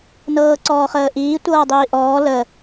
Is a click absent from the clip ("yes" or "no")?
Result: no